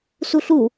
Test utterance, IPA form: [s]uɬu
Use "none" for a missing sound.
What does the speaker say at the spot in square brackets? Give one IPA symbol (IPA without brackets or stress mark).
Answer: s